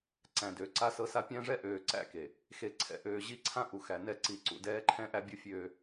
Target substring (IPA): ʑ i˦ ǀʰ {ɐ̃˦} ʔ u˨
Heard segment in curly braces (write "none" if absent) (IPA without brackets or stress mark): ã˦